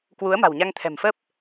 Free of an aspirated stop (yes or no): no